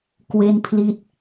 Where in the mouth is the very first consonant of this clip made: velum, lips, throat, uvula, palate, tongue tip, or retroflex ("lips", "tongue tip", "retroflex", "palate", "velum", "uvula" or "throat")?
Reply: velum